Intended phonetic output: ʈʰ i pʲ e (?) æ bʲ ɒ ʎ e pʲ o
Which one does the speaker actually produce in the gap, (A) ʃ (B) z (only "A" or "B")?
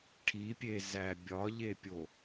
B